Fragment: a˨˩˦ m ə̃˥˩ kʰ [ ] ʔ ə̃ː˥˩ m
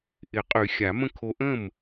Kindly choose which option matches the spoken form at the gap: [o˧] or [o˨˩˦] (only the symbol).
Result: o˧